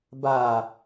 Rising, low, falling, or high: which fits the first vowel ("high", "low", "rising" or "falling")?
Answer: low